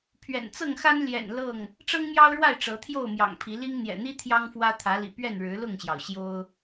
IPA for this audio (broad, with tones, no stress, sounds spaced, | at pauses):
pʰ ɥ ɛ̰˨˩ n t͡s ɤ˥˨ ŋ x a˦ n l j ɛ̰˨˩ n l ɤ˥˨ ŋ | ʈ͡ʂ ɤ˦ ŋ m j ɑ˦ ʊ̯ ɻ w a˥˨ ɪ̯ ʈ͡ʂ ɤ˨˦ t̪ʰ j o˥˨ ʊ̯ m j ɑ̰˨˩ ŋ pʰ i˨˦ l i˦ ŋ n̪ j ɛ̰˨˩ n̪ i˦ t̪ʰ j ɑ˦ ŋ f w ä˦ t̪ʰ ä˨˦ l ḭ˨˩ p ɥ ɛ˥˨ n ɻ ɻ̩˨˦ l ʊ˥˨ ŋ ɕ j ɑ˩ ʊ̯ ɕ j o˦ ʊ̯